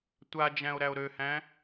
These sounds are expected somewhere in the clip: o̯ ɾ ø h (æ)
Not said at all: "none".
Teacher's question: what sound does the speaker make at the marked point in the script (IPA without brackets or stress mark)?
æ̃